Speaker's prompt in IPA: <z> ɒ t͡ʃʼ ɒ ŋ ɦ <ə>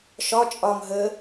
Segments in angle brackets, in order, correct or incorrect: incorrect, correct

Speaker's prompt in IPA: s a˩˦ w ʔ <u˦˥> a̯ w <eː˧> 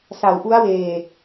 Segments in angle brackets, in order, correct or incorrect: correct, incorrect

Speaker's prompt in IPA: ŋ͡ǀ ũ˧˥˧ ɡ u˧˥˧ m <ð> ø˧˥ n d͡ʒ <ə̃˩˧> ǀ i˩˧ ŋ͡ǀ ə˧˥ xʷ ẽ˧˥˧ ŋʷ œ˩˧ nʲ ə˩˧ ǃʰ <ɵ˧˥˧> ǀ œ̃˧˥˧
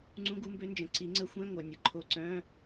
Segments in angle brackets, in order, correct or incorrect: incorrect, correct, incorrect

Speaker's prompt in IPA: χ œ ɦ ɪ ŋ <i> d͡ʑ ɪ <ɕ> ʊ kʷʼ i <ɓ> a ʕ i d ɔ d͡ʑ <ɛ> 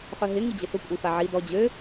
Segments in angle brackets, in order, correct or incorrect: correct, incorrect, incorrect, incorrect

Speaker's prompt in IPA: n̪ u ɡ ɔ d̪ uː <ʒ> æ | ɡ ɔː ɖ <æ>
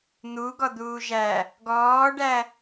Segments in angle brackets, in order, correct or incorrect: correct, correct

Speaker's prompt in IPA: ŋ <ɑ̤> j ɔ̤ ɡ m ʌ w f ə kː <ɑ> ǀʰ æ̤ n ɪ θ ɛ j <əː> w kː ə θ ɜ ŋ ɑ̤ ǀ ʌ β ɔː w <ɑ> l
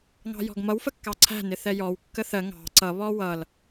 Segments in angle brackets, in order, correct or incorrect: correct, correct, incorrect, incorrect

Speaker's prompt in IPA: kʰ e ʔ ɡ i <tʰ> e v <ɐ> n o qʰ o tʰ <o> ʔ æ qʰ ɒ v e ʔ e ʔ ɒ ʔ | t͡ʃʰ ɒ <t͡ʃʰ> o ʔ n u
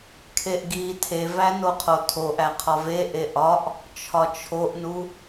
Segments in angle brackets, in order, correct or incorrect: correct, incorrect, correct, correct

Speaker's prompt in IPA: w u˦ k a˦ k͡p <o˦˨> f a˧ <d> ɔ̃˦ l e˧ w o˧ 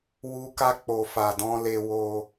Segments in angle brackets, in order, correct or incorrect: incorrect, correct

